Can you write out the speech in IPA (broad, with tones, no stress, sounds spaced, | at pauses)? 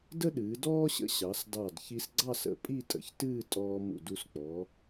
d ə˥ ɗ ɨː˩˧ d ɔː˥ ɕ ə̰˧ ɕ ɑ˩˧ s d ɑ˧˩ d ç i˧ s ɡ͡ǀ ɑ˥˧ s ə̰˧˩ pʼ i˥˧ tʼ ə̰˩˧ ç t ɨː˥˧ tʼ ɔː˧ m ṵ˧˩ d u˧ s k͡p ɔ˩˧